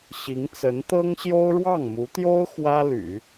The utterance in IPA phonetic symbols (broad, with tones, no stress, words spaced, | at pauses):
ɕi˧˥ŋt͡sə˧˥n t̪ɤ˥ŋɕjo˥ʊ̯ ɻwɑ˥˩ŋmu˧˥t̪jo˥ʊ̯ xwä˥ly̰˨˩˦